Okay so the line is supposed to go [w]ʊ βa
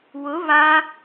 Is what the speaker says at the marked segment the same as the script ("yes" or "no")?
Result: yes